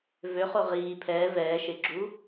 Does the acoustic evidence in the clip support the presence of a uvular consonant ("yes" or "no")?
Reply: yes